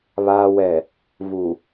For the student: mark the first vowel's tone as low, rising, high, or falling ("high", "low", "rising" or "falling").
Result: low